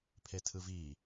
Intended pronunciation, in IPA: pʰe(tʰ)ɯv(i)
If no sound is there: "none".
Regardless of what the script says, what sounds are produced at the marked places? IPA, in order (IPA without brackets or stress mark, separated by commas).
tʰ, i